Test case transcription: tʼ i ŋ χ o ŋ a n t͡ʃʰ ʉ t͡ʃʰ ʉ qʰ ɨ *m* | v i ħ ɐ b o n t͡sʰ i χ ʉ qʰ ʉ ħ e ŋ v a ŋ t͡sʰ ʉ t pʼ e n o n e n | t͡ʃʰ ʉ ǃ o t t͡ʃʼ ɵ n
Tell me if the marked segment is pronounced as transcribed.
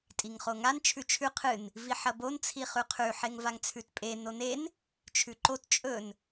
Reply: no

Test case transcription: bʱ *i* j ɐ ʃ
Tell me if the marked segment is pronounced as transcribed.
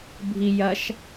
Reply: yes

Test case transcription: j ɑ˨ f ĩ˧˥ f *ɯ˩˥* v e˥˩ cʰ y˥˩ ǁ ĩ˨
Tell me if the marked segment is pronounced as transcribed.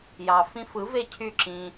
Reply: yes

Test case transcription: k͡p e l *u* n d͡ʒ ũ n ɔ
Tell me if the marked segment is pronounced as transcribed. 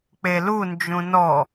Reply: yes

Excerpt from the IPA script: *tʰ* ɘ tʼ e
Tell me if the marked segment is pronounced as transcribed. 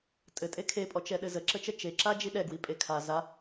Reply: no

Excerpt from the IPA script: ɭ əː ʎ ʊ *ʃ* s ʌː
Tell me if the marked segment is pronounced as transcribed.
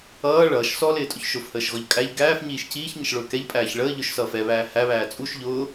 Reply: yes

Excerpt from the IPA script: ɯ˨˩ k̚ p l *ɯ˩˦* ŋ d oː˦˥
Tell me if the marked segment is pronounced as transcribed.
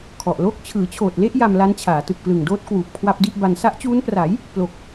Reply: no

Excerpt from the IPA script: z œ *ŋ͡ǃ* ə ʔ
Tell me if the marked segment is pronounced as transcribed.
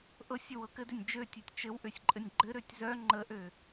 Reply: yes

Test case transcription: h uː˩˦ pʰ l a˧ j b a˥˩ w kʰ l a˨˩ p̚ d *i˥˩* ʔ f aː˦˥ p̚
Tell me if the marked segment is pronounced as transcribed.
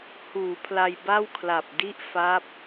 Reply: yes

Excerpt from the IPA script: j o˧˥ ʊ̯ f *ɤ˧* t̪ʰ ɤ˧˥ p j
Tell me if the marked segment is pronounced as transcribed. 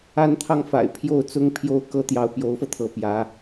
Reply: yes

